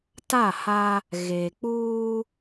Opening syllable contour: falling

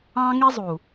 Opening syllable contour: high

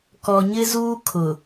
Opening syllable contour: low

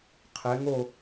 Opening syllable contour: rising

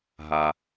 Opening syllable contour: low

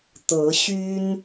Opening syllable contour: rising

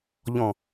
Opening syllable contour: low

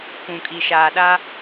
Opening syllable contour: low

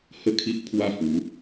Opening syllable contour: falling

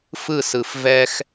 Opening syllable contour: falling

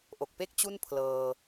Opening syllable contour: low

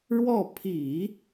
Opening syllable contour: falling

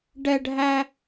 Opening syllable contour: high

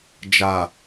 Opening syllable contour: low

